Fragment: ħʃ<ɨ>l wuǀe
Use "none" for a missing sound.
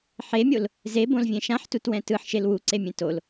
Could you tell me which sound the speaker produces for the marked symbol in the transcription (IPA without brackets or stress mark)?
e